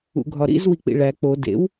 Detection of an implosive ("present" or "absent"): absent